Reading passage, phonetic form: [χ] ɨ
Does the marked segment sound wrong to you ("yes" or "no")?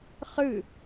no